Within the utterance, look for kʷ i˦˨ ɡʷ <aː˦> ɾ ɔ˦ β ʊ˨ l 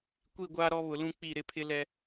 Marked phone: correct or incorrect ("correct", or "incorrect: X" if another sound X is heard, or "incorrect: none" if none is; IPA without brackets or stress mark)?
correct